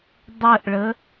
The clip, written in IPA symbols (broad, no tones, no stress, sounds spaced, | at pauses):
dˤ ə ʔ ɭ ə